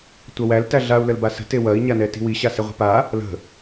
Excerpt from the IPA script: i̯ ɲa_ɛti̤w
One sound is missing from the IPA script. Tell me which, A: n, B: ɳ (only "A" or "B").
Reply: A